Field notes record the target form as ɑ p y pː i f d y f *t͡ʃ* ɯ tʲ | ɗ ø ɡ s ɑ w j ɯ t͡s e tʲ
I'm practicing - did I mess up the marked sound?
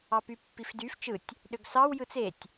no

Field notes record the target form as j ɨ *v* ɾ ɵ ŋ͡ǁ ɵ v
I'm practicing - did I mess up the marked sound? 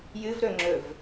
no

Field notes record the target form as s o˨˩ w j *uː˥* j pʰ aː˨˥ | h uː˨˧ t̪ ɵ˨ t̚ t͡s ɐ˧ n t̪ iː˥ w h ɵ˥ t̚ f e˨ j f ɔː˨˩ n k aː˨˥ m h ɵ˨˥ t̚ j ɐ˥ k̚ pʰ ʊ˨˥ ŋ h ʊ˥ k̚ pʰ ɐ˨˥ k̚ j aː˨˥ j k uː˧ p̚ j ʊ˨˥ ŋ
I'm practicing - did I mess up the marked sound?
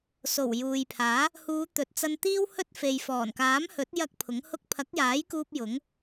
yes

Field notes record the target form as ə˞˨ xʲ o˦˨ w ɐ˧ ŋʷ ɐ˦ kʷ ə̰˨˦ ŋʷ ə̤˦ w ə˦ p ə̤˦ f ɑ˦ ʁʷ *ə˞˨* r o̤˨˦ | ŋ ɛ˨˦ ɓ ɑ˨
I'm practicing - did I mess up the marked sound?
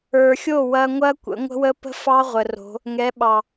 yes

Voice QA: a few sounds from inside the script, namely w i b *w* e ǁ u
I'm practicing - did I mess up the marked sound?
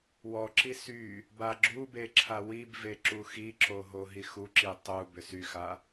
yes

